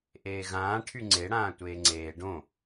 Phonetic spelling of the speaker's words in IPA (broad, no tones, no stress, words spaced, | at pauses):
ʔeːɣãː ʈʰyŋ͡ǀe ɽãːtʷeːŋ͡ǀeː ɖõ